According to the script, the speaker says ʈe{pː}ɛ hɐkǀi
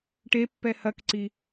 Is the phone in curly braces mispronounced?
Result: no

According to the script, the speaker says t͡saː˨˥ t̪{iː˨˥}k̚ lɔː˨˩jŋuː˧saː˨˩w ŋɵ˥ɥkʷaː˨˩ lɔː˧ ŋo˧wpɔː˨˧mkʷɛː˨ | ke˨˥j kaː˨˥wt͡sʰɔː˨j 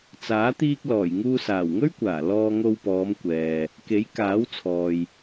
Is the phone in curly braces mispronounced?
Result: yes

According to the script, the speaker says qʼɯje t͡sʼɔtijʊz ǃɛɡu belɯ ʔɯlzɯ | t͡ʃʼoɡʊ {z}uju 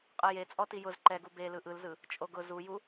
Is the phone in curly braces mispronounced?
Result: no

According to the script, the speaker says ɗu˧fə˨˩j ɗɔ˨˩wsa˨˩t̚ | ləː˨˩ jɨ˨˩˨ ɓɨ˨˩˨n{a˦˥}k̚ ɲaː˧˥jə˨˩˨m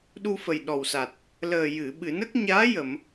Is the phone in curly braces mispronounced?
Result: yes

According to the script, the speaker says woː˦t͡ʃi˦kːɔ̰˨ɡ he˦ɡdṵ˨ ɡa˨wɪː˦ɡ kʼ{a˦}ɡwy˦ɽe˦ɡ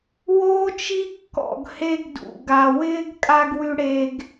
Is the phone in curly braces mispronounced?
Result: no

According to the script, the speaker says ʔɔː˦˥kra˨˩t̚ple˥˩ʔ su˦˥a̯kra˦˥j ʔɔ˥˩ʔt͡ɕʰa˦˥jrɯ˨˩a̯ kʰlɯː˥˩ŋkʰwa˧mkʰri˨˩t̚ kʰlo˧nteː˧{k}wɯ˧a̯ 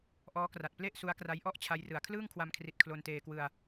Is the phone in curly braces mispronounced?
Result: no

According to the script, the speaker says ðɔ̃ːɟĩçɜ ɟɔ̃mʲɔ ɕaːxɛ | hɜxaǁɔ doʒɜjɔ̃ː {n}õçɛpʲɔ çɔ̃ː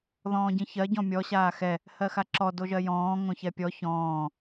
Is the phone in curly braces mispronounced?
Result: yes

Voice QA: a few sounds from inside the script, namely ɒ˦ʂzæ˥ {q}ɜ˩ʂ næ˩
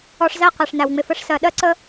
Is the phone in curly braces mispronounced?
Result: no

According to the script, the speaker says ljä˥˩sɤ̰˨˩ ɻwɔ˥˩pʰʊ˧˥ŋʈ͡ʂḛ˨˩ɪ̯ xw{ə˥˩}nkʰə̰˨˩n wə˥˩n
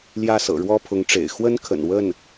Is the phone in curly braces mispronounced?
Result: yes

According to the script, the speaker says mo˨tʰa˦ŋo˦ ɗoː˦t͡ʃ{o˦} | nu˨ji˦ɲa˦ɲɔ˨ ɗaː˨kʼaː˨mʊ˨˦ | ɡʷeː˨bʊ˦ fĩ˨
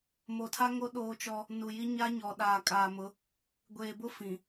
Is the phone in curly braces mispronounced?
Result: yes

